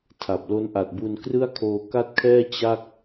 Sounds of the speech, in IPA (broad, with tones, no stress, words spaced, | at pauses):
tʰa˨˩p̚ lo˦˥n ʔa˨˩t̚bu˧n krɯ˥˩a̯ kʰoː˧ka˥˩t̚kʰɛː˥˩ t͡ɕa˥˩k̚